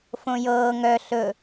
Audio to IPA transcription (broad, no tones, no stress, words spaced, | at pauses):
fõjɤː ŋœ ɬɵ